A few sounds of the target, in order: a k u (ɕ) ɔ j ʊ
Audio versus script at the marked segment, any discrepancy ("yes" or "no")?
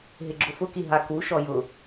yes